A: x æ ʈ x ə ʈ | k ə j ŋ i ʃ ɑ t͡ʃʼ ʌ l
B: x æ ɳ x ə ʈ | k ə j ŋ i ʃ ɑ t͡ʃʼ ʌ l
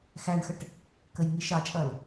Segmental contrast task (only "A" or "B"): B